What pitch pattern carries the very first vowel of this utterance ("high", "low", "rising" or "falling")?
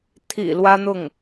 low